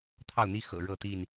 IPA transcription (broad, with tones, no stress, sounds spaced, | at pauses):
t̪ʰ ɑ˥˨ ʊ̯ n̪ i˦ x ɤ̰˨˩ ɻ ɤ˥˨ t̪ i˥˨ n